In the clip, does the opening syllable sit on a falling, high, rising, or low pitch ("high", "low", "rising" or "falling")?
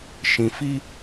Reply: low